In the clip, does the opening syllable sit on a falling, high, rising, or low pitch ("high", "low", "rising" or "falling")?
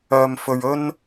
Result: low